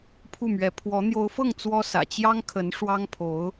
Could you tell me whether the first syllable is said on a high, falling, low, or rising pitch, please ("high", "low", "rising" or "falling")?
falling